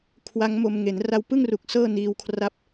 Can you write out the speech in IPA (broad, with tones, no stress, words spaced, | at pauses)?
kʰwa˦˥ŋmo˧m ŋe˩˦nra˧wpɯ˥˩ŋru˨˩k̚ sɤː˥˩niː˧wkʰra˦˥p̚